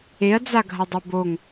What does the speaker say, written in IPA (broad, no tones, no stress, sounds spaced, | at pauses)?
e ɐ̯ d͡z a ɡʱ ɐ dˤ ɛ b o ŋ